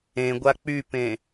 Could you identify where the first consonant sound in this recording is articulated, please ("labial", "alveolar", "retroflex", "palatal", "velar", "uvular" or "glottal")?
velar